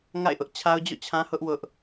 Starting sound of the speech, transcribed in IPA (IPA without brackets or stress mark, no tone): ŋ